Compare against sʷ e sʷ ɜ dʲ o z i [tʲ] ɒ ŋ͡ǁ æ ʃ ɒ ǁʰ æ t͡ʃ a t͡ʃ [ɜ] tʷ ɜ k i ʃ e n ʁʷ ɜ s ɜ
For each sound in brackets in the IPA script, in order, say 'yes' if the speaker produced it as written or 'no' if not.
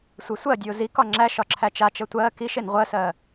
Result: no, yes

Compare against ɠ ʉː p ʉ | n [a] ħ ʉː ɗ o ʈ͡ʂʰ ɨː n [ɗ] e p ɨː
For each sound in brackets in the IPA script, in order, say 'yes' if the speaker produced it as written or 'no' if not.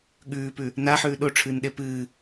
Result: yes, yes

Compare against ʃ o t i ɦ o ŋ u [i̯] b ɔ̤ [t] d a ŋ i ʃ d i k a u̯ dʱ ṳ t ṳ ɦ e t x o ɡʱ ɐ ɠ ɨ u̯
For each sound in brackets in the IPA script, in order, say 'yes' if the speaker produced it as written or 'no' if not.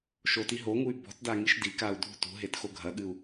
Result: no, yes

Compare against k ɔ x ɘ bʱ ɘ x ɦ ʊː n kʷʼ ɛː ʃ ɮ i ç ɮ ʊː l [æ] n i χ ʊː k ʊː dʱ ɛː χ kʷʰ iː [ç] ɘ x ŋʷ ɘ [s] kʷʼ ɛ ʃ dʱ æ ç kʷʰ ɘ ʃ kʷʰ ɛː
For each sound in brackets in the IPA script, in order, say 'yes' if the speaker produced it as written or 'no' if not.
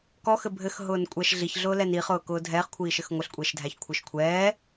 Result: no, no, no

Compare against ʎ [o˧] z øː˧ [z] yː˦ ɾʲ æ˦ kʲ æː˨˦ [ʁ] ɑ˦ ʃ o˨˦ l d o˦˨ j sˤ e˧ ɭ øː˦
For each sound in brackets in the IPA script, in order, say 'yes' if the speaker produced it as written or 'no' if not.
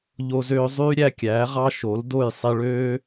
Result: yes, no, yes

